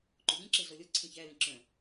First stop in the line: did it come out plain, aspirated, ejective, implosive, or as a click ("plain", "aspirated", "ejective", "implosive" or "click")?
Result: click